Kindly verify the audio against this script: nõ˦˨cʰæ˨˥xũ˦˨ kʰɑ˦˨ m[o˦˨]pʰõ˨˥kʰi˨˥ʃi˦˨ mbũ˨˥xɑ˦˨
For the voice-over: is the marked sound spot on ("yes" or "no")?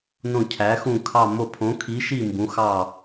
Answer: yes